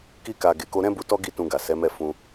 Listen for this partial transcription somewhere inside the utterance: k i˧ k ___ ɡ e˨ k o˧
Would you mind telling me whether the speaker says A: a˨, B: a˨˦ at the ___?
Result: A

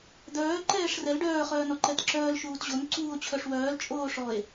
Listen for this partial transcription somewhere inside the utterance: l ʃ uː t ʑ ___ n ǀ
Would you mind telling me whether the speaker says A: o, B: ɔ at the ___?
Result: A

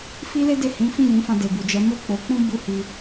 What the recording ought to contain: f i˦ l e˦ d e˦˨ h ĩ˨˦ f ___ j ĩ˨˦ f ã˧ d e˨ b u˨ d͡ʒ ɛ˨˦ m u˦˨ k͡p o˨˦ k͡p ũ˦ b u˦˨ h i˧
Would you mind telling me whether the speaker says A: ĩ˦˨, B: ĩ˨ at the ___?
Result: A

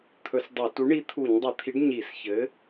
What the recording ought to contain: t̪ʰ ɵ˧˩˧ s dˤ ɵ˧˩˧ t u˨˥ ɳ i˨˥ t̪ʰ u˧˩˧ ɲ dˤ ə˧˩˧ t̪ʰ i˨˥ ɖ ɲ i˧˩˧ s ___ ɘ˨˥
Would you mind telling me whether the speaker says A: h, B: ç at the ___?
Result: B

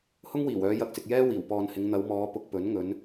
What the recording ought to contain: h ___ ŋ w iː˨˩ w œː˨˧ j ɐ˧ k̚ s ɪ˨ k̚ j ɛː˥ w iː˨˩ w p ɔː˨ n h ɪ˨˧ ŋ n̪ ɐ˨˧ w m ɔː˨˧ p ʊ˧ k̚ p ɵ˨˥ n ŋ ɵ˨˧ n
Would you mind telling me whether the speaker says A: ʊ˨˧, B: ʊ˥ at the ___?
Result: B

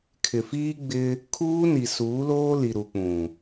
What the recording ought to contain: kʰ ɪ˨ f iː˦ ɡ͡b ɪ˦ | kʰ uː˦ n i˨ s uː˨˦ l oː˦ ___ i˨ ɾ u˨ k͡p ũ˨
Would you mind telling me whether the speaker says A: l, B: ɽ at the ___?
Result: A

